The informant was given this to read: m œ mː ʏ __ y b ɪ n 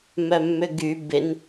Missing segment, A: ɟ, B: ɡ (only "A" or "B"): B